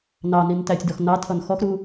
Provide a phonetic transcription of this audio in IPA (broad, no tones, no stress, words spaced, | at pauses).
nɑnin tætʲdɔx nɑtʰʌn xɔxɾu